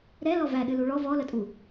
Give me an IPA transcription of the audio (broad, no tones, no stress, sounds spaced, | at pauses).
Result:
ɾ ɛ l ɔ v æ ɗ ɨ l u ɭ ɔ v ɔ l ə tʼ u